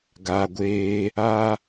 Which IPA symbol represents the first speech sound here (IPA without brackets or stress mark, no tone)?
ɡ